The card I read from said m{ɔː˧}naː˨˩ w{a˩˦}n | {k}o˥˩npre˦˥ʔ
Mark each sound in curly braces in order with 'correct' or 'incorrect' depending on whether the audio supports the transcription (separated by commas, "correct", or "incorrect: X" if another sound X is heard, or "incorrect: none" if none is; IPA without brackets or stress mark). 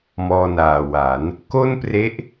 correct, correct, correct